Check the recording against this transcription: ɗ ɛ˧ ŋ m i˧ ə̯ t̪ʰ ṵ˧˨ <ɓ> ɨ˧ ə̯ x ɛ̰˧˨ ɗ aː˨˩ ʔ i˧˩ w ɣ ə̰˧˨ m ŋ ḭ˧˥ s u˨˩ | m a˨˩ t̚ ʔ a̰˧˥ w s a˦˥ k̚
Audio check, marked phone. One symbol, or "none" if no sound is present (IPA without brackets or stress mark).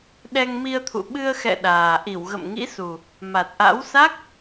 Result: ɓ